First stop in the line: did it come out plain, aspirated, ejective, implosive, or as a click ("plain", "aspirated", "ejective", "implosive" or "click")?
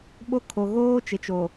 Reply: implosive